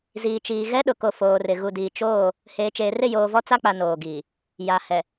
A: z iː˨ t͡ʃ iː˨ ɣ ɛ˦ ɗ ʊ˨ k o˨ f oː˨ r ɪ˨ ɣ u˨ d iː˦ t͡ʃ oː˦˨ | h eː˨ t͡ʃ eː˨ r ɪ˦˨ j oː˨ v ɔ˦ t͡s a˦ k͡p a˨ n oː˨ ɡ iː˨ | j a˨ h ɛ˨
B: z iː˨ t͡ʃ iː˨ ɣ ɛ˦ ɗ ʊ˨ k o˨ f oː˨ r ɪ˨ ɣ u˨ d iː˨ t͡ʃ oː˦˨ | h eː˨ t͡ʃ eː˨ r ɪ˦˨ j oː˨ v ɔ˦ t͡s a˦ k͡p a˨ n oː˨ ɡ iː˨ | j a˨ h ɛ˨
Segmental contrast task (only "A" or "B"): B